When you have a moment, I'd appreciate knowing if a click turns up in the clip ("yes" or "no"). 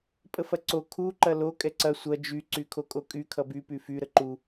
yes